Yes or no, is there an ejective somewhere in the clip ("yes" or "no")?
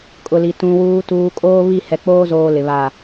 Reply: yes